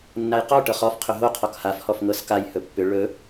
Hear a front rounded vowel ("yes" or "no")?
yes